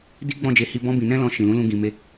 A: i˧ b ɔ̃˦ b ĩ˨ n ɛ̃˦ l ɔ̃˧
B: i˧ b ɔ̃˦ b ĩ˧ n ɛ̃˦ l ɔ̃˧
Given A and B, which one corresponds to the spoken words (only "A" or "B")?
B